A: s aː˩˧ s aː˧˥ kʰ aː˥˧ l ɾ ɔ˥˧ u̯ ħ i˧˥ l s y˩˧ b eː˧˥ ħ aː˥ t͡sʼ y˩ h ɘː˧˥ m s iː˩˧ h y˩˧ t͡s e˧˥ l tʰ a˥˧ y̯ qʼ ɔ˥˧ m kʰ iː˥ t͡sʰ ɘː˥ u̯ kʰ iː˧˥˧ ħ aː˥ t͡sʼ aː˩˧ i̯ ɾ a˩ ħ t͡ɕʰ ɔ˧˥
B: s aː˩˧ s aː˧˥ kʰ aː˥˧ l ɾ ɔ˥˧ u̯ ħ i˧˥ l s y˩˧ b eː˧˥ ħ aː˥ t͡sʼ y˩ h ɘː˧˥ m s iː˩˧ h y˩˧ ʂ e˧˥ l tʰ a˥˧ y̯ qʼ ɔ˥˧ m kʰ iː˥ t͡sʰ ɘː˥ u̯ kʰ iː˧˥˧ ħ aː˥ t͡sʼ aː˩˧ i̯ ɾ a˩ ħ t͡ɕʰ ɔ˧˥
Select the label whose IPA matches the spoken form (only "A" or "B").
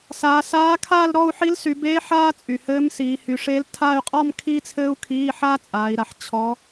B